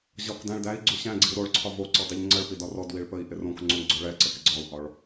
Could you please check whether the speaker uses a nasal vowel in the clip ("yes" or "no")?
yes